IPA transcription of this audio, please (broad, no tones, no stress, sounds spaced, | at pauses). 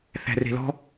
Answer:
θ æ̤ r e̤ l ɔ̤